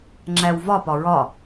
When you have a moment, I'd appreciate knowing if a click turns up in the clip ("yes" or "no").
yes